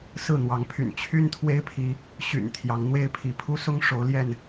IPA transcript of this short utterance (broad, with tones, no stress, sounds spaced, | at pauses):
s ɹ̩˥˨ n̪ w ɑ˨˦ ŋ pʰ y̰˨˩ n t͡ɕʰ y˦ n t̪ʰ w e˦ ɪ̯ pʰ i˨˦ | ɕ y̰˨˩ n t̪ʰ j ɑ˨˦ ŋ n̪ w e˦ ɪ̯ pʰ i˨˦ pʰ u˦ s ʊ˦ ŋ ʂ o˨˦ ʊ̯ l j ɛ˥˨ n